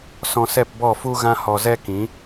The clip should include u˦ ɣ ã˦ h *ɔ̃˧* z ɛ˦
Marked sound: incorrect: ɔ˧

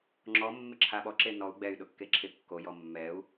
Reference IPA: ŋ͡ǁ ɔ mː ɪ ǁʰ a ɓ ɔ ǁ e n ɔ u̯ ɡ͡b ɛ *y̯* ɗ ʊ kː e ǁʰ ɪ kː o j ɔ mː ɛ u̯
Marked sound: correct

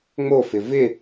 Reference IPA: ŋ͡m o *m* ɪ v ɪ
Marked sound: incorrect: f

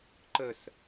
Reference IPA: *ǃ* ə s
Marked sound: correct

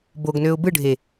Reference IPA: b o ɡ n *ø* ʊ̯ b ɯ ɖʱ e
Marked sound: correct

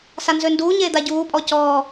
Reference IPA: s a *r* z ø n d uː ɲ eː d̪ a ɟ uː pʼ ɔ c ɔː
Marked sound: incorrect: n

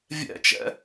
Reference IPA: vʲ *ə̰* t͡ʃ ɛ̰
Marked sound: incorrect: ɛ̰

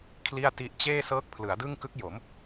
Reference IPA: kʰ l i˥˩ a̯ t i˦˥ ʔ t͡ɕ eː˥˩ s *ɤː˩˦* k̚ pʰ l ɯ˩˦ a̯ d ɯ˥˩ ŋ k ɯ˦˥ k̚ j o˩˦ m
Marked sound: incorrect: ɤː˦˥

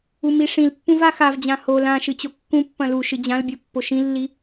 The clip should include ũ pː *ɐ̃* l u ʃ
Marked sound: correct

